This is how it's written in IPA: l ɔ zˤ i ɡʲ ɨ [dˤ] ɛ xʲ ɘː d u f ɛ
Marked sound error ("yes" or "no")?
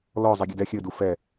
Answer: yes